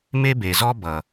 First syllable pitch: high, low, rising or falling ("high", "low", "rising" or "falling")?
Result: high